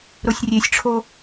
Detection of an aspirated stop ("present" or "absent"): present